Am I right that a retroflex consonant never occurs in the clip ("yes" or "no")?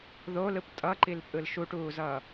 no